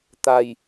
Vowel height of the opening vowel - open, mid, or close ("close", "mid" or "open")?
open